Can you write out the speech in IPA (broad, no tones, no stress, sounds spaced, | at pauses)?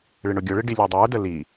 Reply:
ɭ ɪ ɳ ʊ ɡʲ ʊ ɭ ɪ ɖ i lʲ ə˞ dˤ ə˞ d ə l i